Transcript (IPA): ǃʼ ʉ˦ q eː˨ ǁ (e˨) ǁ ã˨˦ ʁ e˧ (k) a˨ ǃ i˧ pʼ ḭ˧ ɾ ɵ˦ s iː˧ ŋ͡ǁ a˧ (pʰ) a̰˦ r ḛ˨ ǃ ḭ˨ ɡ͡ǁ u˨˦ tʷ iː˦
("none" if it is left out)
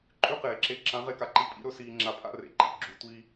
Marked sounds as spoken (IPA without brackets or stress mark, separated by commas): e˧, k, pʰ